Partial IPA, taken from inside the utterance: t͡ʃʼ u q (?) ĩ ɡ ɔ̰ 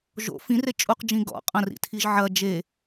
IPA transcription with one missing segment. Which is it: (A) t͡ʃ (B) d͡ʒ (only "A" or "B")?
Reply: B